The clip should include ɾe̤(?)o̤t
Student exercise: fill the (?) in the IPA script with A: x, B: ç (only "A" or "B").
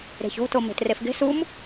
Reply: B